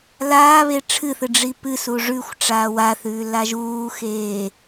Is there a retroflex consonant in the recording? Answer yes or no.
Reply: yes